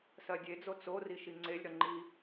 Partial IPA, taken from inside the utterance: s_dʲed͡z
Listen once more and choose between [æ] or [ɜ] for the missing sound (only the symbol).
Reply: ɜ